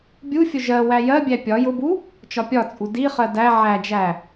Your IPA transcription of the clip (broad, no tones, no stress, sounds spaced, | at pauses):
bʲ u fʲ ʊ ʒ ɜ w æ j ɜ bʲ æ pʲ ɒ j ʊ b u | t͡ʃ ɒ pʲ ɒ t͡sʼ u d i χ ɜ d æ ʕ æ d͡ʒ æ